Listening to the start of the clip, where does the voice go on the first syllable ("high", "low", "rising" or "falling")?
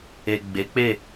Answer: low